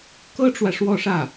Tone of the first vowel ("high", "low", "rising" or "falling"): high